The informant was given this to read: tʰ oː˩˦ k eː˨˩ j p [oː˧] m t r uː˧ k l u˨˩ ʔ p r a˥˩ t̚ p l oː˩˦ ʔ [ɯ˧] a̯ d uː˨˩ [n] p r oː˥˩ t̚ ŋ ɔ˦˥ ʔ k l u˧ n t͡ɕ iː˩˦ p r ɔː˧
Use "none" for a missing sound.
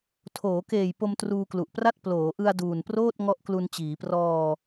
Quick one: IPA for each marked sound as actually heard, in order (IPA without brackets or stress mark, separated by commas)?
o˧, ɯ˧, n